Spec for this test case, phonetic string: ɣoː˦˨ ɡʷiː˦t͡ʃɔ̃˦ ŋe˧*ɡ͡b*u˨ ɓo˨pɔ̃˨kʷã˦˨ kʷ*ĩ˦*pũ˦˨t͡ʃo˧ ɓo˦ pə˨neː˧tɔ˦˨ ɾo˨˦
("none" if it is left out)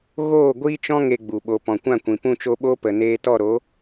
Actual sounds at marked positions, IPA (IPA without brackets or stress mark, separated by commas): ɡ͡b, ĩ˨